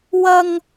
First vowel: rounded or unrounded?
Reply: unrounded